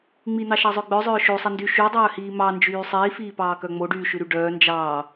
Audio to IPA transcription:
ŋ͡m i n̪ ɑ ʃ ɑ zˤ œ ɡ͡b œ zˤ œː ʃ o sˤ e n d y ʃ y dˤ œː h iː m ɑ n d͡ʒ yː sˤ iː f iː p ɑː k œ ŋ͡m o ɖ yː ʃ ʉ ɾ y ɖ œː n d͡ʒ ɑː

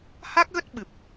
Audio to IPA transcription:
h a˦˥ k̚ ɣ ə˦˥ t̚ ɓ ɨ˨˩ p̚

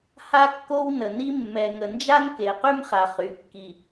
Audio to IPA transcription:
h a˦ kː o˦ w n ə˨ n i˦ mː ɛ˨ ŋ ə˨ n d͡ʒ a˦ n k e˨ q y˦ m χ a˨ χ y˨˦ kː i˨

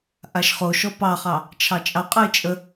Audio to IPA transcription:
ʔ a ʃ χ o ʃ ɔ p ɑ χ ɑ | t͡ʃʰ ɑ t͡ʃʼ ɑ qʼ ə ɪ̯ t͡ʃʼ ə

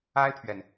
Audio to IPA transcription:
a˥ ɪ̯ pʰ ɥ ɛ˨ n

